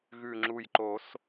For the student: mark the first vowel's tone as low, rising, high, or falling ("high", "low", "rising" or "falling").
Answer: low